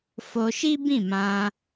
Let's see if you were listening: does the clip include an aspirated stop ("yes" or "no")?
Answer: no